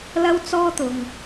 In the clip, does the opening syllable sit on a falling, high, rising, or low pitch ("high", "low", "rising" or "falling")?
high